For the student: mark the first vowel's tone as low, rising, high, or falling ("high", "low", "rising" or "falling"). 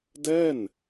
falling